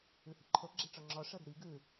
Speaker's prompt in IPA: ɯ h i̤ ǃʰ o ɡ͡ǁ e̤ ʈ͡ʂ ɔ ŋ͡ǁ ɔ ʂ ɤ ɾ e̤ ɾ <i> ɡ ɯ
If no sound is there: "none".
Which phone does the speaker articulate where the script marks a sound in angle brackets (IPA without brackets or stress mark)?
i